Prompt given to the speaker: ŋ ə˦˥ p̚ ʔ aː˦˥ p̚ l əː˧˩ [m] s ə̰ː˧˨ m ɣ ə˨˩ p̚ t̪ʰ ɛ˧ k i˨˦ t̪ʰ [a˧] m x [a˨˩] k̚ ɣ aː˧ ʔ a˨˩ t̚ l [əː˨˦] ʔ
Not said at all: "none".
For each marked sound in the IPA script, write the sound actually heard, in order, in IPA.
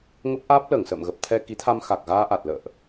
ŋ, a˧, a˨˩, ə̰ː˧˨

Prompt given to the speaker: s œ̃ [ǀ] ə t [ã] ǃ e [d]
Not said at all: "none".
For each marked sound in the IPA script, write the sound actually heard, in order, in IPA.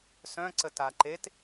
ǀ, a, t

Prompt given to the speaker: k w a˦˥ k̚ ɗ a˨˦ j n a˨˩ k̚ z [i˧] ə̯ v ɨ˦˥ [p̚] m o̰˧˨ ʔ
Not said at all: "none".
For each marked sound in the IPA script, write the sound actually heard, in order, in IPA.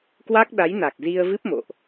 i˧, p̚

